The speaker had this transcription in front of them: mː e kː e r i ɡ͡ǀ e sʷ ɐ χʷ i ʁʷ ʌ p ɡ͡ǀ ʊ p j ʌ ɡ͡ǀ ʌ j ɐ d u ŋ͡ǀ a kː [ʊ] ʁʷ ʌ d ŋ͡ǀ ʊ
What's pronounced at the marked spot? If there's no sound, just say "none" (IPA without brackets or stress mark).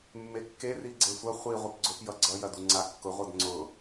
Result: ʊ